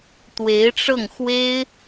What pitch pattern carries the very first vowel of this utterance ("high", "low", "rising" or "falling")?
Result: rising